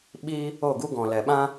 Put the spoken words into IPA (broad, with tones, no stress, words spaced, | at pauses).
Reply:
ɓiː˧ | o˦˨ɡu˦ɡɔ̃˨ lɛ˨ɓã˦